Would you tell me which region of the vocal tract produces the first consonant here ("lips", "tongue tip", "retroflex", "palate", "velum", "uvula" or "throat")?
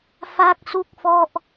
lips